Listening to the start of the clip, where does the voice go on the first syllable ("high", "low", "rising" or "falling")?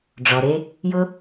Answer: low